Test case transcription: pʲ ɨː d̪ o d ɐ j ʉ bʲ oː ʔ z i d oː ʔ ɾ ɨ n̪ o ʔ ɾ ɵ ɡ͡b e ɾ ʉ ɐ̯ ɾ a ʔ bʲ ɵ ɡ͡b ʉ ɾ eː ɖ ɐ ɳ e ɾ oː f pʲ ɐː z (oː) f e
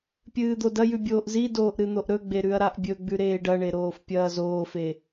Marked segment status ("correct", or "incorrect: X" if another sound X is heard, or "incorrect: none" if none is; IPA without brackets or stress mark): correct